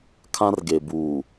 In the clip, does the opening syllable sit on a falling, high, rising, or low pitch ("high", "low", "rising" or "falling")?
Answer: high